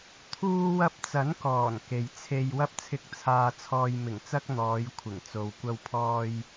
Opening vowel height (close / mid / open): close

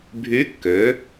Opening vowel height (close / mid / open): close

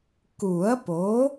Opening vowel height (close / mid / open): close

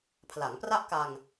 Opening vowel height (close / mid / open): open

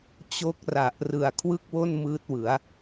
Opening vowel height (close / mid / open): mid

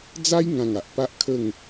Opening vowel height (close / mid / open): open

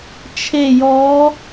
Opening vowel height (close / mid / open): mid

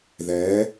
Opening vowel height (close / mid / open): mid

